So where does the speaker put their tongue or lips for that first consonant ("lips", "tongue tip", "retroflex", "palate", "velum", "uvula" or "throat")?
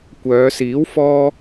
velum